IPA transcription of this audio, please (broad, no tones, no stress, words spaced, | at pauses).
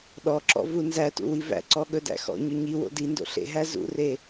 ɗɔǁɔ̰ vunzætṵ wivæ̰ǀɔ ɠɵdæ̰xɔ̰ɲɵ ɲi wo̰dindo̰ ɬḛɦæ zṵre